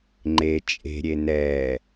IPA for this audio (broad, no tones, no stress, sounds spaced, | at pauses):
ŋ͡ǃ e t͡ʃʼ e̤ ɾʲ e n ɛː